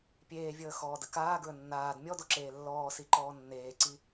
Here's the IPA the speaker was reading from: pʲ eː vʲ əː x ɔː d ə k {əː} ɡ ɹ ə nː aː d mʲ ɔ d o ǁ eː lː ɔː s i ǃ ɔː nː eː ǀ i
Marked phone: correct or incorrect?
incorrect